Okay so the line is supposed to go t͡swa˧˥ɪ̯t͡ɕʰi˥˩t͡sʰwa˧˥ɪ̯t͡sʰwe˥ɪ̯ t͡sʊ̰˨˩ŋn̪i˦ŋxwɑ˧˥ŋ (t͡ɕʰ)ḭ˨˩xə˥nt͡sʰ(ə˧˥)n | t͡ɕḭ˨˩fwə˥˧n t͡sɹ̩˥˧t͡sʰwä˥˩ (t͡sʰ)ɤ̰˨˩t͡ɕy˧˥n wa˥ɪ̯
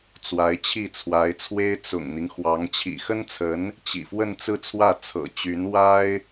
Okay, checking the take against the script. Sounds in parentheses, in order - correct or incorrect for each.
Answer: correct, correct, correct

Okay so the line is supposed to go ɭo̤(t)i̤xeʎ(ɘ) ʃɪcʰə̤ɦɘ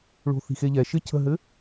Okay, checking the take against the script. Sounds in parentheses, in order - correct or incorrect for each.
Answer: incorrect: θ, incorrect: ɛ

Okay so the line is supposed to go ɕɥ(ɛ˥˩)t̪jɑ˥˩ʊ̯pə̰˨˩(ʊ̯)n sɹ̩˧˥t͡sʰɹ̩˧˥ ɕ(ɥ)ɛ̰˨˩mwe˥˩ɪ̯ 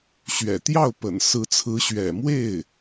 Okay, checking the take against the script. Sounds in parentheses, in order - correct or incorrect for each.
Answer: incorrect: ɛ̰˨˩, incorrect: none, correct

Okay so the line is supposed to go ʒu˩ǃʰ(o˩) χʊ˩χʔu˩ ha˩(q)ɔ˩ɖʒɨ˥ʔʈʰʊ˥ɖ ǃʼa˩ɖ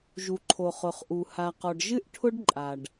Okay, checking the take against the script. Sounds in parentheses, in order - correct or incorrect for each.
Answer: correct, correct

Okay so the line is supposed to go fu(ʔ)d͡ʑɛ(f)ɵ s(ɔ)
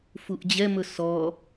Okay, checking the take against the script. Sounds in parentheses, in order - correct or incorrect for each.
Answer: correct, incorrect: m, correct

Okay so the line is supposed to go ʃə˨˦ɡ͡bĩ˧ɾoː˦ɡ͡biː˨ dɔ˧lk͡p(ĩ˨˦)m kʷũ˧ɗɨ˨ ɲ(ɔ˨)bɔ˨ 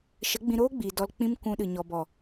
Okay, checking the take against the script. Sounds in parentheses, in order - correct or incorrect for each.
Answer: incorrect: ĩ˦, correct

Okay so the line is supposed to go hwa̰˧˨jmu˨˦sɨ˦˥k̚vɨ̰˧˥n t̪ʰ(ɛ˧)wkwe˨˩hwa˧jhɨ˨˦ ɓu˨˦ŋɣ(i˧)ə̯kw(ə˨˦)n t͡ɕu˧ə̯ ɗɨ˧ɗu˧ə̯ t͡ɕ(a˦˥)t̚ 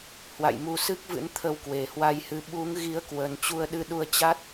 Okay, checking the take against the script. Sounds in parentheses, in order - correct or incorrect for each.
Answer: incorrect: ə˧, incorrect: i˨˦, incorrect: ə˨˩, correct

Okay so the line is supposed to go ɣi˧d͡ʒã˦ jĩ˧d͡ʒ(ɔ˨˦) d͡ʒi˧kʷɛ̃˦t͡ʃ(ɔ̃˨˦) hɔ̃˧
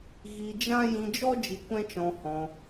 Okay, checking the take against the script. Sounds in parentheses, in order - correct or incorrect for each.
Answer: incorrect: ɔ˦, incorrect: ɔ̃˧

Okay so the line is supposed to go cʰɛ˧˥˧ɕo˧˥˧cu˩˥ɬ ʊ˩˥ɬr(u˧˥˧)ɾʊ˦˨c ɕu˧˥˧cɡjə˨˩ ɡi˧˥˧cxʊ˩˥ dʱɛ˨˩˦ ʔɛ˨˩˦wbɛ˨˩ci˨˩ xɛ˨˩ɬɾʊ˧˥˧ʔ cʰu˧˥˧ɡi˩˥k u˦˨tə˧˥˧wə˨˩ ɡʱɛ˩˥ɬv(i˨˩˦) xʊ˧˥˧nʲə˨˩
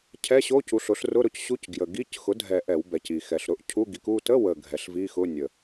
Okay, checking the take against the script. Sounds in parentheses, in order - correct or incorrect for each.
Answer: incorrect: ʊ˧˥˧, incorrect: i˧˥˧

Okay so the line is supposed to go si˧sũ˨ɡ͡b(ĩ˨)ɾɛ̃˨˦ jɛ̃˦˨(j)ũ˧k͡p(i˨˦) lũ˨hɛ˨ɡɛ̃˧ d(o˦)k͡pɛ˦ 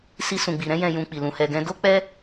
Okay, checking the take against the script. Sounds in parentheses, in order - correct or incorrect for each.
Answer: incorrect: i˨, correct, incorrect: i˨, correct

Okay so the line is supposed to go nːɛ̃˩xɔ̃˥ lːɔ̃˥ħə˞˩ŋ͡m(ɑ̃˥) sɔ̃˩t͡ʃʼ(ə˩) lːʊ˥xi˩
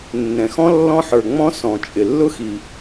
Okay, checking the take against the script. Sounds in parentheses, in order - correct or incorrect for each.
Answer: incorrect: ɔ̃˥, incorrect: ɪ˩

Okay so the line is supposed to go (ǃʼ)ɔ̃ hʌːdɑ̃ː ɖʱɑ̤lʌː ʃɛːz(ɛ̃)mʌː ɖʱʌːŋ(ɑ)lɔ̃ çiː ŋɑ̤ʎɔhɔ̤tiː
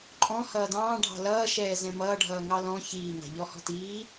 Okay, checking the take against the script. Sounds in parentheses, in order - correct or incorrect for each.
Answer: correct, correct, correct

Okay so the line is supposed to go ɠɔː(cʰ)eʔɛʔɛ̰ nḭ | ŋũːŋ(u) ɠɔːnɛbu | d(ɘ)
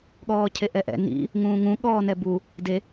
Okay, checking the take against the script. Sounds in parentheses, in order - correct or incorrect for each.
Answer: correct, incorrect: ũ, incorrect: e

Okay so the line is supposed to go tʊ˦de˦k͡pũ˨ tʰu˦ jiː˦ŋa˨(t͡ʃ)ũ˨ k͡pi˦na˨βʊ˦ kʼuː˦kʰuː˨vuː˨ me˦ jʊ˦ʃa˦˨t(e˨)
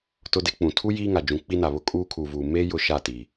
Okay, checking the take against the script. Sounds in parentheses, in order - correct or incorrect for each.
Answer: incorrect: d͡ʒ, incorrect: i˨

